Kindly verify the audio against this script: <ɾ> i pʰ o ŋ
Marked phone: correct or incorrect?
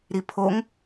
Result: correct